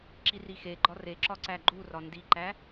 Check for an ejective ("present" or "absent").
absent